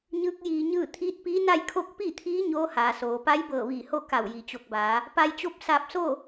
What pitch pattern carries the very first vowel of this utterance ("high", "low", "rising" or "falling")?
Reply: rising